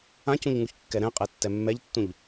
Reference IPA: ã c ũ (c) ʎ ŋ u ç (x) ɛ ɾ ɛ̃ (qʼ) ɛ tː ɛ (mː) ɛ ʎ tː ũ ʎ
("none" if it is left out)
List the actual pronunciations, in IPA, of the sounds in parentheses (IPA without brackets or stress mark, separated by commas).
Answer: none, kː, qʼ, mː